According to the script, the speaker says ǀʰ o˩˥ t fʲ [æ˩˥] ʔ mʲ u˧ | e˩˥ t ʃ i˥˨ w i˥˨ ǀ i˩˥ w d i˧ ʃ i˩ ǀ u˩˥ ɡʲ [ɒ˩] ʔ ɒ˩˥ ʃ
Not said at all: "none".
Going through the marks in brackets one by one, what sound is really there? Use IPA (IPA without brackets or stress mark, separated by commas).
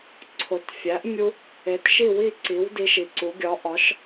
æ˩˥, ɒ˩˥